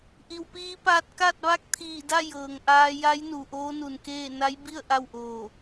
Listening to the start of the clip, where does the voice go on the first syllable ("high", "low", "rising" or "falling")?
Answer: low